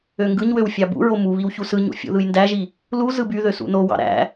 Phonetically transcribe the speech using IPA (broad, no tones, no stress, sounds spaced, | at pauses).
ø ŋ ɡ ɯ ɲ w ø w fʲ ɑ b ṵ ɹ o m u β i w ç u s ɯ ɲ ṵ fʲ ṵ ð ɯ j n d æ ʒ i | l u z ɯ b y ð ø s ṵ n o w ɑ̰ ɾ æ̰